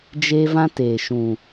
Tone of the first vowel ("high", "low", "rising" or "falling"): high